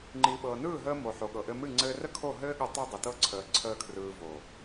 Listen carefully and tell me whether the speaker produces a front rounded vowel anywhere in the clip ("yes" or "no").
no